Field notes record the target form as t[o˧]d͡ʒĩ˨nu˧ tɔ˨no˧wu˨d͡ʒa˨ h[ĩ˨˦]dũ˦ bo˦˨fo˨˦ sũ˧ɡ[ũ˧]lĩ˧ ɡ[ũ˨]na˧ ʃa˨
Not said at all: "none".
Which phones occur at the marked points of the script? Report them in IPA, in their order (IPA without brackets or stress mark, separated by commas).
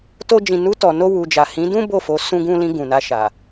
o˧, ĩ˨˦, ũ˧, ũ˨